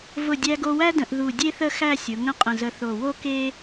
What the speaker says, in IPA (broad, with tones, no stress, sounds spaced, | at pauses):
v ʊ˧˩ dʲ æ˧ ɡ o˧ w æ˥ d ə̃˧ ʔ ð u˧˩ dʲ e˥ θ ə˥˧ x æ˥˧ sʲ ʊ˩˧ ŋ ə̃˥˧ qʼ ə̃˧˩ z ə˧ θ o˧˩ w o˥ k e˥